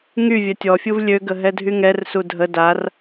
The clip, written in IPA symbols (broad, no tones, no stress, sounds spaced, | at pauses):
ŋ y vʲ œ tʲ ɔ fʲ u v lʲ ø ɡ ə ɦ ɛ dʱ y ŋ ɛ r s u dʱ ə d a r